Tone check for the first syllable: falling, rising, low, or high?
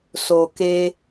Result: low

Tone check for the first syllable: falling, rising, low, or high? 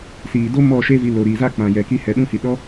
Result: low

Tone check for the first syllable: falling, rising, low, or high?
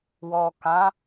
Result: low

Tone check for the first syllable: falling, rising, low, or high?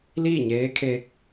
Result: falling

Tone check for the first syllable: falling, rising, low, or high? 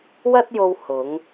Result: high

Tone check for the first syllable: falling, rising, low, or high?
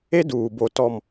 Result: high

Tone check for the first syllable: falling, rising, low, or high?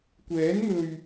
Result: rising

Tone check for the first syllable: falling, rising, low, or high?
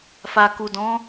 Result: low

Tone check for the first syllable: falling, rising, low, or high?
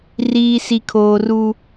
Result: low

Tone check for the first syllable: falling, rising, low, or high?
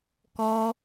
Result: high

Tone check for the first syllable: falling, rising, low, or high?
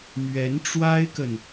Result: rising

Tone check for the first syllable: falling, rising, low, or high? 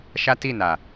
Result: high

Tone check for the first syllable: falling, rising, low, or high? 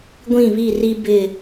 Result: falling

